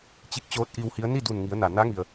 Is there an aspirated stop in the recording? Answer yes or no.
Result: no